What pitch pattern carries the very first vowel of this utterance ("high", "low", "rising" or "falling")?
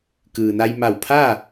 low